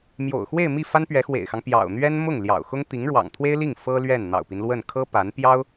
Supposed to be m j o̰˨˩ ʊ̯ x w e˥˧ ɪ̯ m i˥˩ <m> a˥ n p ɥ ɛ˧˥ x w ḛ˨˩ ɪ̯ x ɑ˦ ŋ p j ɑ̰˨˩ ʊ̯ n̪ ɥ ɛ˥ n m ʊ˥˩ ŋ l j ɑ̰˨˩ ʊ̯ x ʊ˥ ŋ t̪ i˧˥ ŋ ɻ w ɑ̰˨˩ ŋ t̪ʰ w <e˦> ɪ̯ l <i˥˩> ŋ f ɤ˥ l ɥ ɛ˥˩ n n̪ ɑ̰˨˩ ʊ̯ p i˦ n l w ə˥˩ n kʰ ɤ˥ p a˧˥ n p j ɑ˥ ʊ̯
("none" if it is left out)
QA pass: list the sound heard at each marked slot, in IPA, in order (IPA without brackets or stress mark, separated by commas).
f, e˥, i˥˩